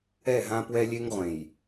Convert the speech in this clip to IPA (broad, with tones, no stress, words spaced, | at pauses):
ɛ˦˨ɦã˦ pwɛ˦lʲe˦ŋ ʁʷẽ˨j